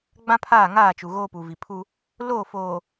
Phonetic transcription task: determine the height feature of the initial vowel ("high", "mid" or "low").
low